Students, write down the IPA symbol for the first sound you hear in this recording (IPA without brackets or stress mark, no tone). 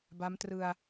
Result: b